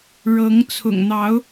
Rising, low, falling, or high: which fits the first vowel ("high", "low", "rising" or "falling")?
rising